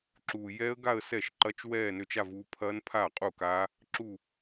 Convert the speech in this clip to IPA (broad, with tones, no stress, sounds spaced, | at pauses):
ǁ uː˨ j ɛː˦˥ ə̯ ɡ a˥˧ ə̯ s ɛ˥˩ ʃ ǃ ɐ˦˥ t͡ʃ w ɛː˥˧ n ø˥˩ t͡ʃ a˥˧ v u˦˥ pʰ ɐː˦˥ n pʰ aː˥˩ qʼ u˥˩ k aː˦˥ | ǁ u˥˧